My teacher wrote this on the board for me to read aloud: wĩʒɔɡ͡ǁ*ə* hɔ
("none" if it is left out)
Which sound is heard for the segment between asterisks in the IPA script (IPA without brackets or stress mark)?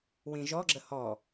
ə